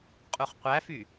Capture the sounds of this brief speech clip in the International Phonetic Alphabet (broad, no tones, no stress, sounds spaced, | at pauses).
qʼ u χ qʷ æ f y